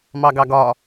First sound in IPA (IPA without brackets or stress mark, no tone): m